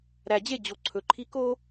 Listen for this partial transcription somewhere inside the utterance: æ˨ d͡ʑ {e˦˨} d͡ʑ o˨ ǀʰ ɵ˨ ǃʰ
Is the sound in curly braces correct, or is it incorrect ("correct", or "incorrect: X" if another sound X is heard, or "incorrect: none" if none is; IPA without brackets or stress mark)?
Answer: correct